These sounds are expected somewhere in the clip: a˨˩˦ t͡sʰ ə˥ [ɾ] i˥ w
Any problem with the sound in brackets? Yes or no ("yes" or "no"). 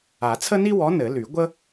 yes